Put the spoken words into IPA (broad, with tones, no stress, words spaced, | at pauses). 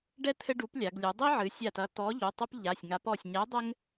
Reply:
ɖɛ˦ t̪ʰɘ˦ɖu˨˥plʲa˩˧ɡ lʲu˩˧dˤi˦ʕɨ˩˧ sʲa˧˩tɐ˨˥ t̪ɔ˨˥ ʎu˩˧˩tˤo˦p ʎa˩˧˩sʲŋa˨˥p ɔ˧˩sʲɲɛ˨˥ dˤɘ˦ŋ